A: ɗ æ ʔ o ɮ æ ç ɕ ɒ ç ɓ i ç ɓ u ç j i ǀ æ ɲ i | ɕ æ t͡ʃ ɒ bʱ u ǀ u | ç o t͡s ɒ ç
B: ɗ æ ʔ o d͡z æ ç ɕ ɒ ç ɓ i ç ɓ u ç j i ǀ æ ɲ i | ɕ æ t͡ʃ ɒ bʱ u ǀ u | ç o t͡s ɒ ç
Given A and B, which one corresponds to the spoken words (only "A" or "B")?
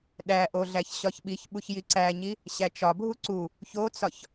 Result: A